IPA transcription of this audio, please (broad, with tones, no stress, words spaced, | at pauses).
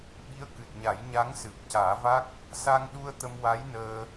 ɓi˧˥ə̯kɨ˨˩t̚ ɲa˨˩˦j ɲa˧˥ŋ sɨ˨˩p̚caː˨˩˦va˦˥k̚ | sa˧ŋɗu˧ə̯ t̪ə˧mwa˧˥jnəː˧